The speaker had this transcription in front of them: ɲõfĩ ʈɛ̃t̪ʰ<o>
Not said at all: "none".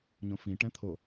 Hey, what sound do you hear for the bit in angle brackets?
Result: o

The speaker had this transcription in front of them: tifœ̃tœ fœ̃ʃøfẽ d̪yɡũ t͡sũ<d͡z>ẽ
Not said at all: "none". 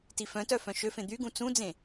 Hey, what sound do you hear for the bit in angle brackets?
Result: d͡z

